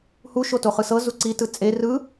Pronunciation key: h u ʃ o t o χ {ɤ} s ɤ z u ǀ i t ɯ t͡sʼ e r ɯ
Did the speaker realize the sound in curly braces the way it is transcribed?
no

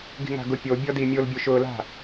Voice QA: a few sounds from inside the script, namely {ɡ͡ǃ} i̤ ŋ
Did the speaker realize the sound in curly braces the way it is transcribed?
no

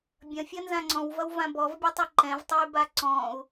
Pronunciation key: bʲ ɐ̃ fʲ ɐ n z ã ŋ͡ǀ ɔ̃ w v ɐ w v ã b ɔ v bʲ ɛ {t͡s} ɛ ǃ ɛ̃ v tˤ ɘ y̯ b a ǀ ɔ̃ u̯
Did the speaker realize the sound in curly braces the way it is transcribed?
no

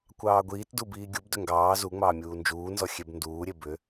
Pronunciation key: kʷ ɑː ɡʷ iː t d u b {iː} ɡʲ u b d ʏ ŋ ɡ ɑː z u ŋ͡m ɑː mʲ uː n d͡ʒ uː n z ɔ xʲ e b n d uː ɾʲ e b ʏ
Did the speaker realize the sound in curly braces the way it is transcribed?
yes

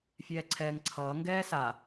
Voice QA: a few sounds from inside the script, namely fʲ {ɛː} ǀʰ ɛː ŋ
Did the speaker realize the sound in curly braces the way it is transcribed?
yes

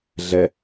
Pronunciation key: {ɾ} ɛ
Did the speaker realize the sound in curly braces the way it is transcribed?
no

